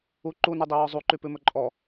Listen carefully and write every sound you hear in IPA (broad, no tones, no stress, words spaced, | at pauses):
u ǃunʉdˤiwɔ zˤuǃypʉmɵ ǃʼɔ